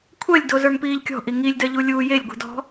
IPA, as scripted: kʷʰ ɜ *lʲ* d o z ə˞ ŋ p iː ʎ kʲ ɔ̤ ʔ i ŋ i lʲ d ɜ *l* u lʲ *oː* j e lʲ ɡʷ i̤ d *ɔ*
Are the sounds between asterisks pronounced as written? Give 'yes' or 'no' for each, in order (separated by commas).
yes, no, no, no